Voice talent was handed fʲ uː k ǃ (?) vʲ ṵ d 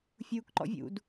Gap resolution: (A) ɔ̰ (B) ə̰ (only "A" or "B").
A